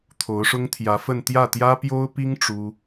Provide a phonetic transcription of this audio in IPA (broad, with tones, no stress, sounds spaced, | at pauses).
t̪ʰ o˧˥ ʊ̯ ʂ ʊ˥ ŋ t̪ʰ j ä˧˥ f ə˥˧ n t̪ j ä˥˩ t̪ j ä˥ p j o˥ ʊ̯ p i˥ ŋ ʈ͡ʂ u˥